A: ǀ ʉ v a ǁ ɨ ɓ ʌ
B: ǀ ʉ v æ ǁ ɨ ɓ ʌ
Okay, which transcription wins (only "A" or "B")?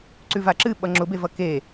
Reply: A